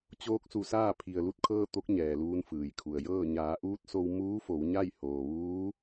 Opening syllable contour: rising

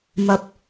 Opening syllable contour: high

